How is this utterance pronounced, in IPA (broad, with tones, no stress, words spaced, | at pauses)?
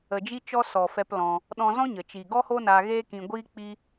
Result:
ə˨d͡ʒi˧ t͡ʃɔ˧ sɔ˨fɛ˧p lɔ̃˧ | ɗɔ̃˧zɔ̃˦ɲə˨t͡ʃi˨ ɡɔ˦ho˦naː˧ ɣeː˦kĩ˧ɡʷiː˦ k͡pi˦